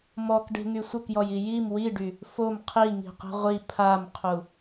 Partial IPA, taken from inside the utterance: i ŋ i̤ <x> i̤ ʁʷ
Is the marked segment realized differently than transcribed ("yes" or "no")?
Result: yes